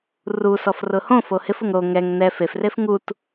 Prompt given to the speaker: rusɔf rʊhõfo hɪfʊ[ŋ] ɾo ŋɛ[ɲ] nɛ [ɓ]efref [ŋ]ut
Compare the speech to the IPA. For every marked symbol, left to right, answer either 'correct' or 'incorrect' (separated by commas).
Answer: correct, incorrect, incorrect, correct